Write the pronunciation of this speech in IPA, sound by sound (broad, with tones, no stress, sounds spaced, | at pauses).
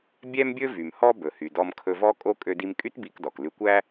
bʲ ɛ˥ m bʲ ɵ˥ v y˩ m h ɔ˥ b ɵ˩ h y˩ d ɔ˧ m kʰ ɵ˧ v ɔ˥ kʼ o˥ kʼ ø˧ d i˧ m kʼ y˥ t b i˧ k d ɔ˩ k l ʉ˧ kʷ æ˥